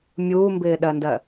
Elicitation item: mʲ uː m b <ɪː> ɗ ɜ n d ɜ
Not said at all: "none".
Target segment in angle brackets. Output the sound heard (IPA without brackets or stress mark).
ɪː